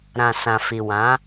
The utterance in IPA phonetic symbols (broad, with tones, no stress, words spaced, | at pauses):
ɾã˨sã˨fi˨ wã˨˦